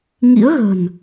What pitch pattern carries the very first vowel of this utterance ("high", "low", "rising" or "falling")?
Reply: rising